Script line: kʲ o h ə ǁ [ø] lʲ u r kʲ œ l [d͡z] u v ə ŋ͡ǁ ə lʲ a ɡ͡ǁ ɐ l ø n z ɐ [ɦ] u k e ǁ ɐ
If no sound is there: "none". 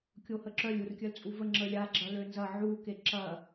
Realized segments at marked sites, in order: œ, t͡sʼ, ʕ

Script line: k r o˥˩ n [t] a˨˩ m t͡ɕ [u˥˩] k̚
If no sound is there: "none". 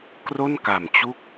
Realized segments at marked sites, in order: k, u˥˩

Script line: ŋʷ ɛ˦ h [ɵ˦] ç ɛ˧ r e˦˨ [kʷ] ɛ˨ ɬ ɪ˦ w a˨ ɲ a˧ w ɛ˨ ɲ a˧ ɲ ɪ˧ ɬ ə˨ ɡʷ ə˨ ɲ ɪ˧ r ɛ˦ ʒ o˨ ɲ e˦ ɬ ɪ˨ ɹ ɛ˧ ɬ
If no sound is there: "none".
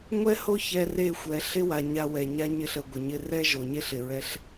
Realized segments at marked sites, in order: o˦, xʷ

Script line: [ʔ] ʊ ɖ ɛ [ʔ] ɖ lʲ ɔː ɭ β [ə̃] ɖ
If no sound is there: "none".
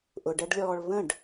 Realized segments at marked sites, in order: ʔ, none, ə̃

